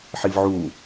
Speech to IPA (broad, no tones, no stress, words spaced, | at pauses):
ħivʕuː